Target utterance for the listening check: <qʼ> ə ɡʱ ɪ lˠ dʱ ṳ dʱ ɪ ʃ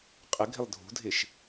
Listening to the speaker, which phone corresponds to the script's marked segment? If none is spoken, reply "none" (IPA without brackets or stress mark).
qʼ